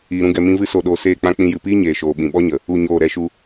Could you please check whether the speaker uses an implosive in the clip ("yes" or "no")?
yes